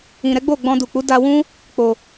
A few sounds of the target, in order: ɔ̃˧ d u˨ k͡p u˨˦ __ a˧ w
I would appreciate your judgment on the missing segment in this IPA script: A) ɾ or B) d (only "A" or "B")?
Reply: B